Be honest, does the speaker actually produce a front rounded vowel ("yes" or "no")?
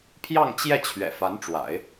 no